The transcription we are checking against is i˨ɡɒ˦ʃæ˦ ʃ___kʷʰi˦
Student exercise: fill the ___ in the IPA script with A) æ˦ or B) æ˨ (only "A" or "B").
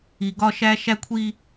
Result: A